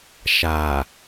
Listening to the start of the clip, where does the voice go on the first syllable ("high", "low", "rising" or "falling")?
low